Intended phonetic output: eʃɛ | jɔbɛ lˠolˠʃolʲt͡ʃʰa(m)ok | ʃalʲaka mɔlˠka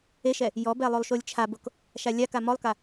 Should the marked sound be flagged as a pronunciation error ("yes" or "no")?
yes